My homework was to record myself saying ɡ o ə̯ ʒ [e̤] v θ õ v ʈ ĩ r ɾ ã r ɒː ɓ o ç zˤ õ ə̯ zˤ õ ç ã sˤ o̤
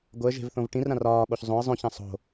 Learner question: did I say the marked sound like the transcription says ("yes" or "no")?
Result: yes